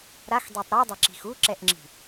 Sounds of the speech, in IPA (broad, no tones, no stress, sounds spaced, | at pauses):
ɾ a x dˤ e tˤ ɾ u dˤ ɛ ǁ i̤ x u ǁ ɛ ʔ ŋ͡ǁ i̤